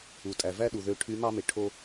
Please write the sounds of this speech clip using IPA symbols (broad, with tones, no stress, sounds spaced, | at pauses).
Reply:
u˩ tʼ æ˩ v æ˥ ɗ u˩ ð ø˧˥ ʈʰ y˧˥ m ɑ˥ m e˩ ʈʰ o˧